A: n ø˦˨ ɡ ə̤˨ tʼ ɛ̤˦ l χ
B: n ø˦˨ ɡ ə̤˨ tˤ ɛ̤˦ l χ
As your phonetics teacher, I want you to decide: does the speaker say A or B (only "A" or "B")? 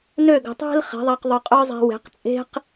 B